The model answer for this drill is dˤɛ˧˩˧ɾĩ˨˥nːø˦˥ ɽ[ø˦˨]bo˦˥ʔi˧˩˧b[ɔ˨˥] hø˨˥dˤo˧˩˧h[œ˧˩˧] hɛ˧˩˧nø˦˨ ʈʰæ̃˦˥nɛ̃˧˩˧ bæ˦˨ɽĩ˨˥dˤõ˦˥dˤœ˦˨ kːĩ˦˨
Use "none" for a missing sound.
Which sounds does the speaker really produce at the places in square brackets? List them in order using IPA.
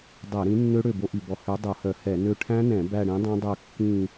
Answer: ø˦˨, ɔ˨˥, œ˧˩˧

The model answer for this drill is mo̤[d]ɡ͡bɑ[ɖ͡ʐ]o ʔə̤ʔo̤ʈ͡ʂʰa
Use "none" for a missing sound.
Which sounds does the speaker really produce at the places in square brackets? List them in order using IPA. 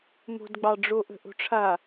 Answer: d, ɖ͡ʐ

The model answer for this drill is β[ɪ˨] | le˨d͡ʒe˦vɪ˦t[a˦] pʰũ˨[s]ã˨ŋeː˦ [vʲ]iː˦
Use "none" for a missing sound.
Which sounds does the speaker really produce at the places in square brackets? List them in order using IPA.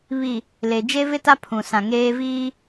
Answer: i˨, a˦, s, v

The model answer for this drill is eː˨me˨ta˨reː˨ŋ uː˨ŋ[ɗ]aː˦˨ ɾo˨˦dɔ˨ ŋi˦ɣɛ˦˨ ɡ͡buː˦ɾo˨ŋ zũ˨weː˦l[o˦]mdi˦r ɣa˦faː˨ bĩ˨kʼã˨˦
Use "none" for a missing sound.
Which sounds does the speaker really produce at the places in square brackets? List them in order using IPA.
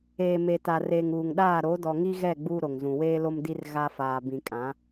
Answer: ɗ, o˦

